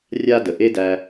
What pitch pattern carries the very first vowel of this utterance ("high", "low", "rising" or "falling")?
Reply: high